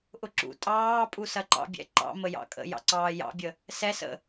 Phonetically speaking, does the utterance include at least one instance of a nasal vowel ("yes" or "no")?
no